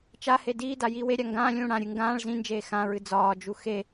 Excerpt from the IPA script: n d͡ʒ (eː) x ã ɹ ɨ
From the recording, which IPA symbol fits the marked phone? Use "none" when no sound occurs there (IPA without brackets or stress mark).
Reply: eː